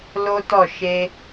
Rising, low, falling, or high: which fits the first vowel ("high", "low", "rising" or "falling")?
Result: high